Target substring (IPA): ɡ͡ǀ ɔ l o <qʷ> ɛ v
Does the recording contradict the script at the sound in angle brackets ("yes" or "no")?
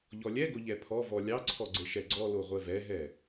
yes